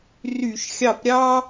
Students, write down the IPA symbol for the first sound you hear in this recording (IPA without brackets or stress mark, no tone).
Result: r